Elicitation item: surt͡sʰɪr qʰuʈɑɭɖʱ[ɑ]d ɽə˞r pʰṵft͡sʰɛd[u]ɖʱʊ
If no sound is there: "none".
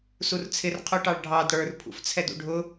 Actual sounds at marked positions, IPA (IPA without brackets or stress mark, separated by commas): ɑ, ṵ